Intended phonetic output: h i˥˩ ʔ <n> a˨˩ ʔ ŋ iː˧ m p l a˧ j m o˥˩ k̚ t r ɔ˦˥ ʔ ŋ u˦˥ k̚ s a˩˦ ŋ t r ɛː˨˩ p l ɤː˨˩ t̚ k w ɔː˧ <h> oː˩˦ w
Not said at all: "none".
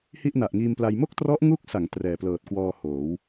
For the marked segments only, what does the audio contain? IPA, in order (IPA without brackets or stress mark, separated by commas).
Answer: n, h